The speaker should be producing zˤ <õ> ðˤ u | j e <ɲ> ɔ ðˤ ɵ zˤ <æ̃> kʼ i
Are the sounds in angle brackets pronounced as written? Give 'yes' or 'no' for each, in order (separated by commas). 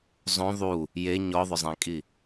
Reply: yes, yes, yes